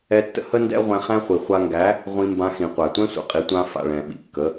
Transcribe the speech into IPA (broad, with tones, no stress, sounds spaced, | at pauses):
ɛ˧ tː ə̰˦ h ə˦ n d ɛ̰˦ ʁʷ ɛ̃˧ χ æ̃˦ χʷ i˨ χʷ a˧ ŋ ɡ æ˨˦ | ʁʷ ĩ˧ m b ã˧ x ĩ˨ qʷ æ˨ tʷ ɛ̃˦ sʷ ə̰˨ qʼ i˨˦ tʷ ã˧ f a̰˨ ɭ ɛ̃˨ ɓ ḭ˨ kː ə˨˦